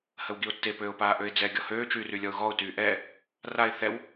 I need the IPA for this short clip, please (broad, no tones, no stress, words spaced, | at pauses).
həwɡiʊ̯tːe pøːʊ̯paːʔøɪ̯d͡zɛ ɡʲɔhøː t͡ʃyːrylʲɔʊ̯ɣɔʊ̯ tyːʔɛː | raɪ̯ θɛw